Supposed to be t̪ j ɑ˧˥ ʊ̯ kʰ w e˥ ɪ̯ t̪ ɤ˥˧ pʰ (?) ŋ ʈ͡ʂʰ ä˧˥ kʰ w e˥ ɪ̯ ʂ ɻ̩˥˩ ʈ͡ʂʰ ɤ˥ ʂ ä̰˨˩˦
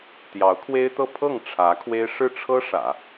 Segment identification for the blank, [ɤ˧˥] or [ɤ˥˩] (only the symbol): ɤ˥˩